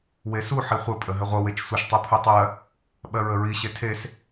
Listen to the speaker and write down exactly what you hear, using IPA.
w e s u ħ i χʷ ɘ pʼ ə ɦ ɘ ʁʷ ə w e t͡ʃ sʷ ə ʃ tˤ u pʰ u tˤ ɜ | ɓ ɜ ɹ ə ɹ i ɕ e tʰ e s

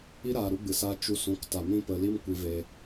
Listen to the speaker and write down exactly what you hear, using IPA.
i˦ ɾ aː˨ ɾ u˦ ɡ͡b ɨ˨ s a˦ t͡ʃ u˧ s ũ˨˦ k t a˨ m ĩ˦ p ə˧ l i˦ m kʷ i˧ v e˧

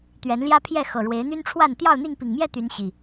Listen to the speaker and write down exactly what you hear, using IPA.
t̪ ɥ ɛ˨˦ n l j ä˦ pʰ j ɛ˥˨ x ɤ˨˩ ɻ w e˨˦ ɪ̯ n̪ y˦ n ʈ͡ʂʰ w a˥˨ n t̪ j ɑ˥˨ ʊ̯ n̪ i˥˨ ŋ p i˨˩ ŋ m j ɛ˥˨ t̪ y˨˦ n ɕ i˨˩

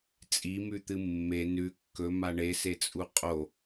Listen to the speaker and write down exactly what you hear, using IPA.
t͡sʼ i m ʉ t̪ ɨ mː e n ʉ kː ɵ m a ɳ e s e t͡sʼ u qʼ o

